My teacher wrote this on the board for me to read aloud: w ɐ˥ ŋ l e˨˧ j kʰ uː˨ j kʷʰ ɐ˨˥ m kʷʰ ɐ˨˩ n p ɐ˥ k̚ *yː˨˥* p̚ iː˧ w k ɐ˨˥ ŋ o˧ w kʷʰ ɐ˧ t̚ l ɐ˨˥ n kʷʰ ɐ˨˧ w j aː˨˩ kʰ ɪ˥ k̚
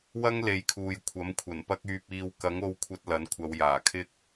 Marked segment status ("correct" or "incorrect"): incorrect